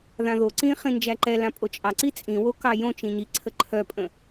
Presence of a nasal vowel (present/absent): present